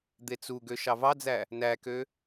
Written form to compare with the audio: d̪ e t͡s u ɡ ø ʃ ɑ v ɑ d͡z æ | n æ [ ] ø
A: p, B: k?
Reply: B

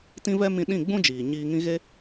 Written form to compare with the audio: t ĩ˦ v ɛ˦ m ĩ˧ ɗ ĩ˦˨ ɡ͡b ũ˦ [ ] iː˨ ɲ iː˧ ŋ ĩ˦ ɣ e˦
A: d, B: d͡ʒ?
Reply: B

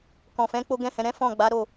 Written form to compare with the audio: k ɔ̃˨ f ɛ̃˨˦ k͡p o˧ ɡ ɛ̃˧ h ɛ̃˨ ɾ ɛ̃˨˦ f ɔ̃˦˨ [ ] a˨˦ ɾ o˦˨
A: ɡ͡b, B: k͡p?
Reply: A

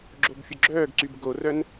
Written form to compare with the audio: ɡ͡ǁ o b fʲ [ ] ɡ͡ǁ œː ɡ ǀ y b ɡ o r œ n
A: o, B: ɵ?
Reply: B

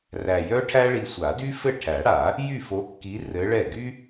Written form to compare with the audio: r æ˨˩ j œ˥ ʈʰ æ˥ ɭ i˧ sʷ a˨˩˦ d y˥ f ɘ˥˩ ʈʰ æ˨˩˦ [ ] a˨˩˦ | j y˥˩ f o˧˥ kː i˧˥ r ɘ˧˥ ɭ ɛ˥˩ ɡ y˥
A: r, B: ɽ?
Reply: B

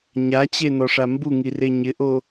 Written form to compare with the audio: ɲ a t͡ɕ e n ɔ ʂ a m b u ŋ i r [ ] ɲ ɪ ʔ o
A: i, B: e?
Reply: B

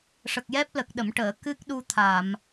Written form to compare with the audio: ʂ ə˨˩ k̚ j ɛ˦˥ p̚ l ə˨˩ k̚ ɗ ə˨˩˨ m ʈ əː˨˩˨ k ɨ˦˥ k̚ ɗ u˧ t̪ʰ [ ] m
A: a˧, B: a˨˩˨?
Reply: B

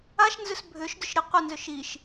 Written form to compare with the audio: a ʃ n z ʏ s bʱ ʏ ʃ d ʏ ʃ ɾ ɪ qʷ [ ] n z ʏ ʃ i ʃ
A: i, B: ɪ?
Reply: B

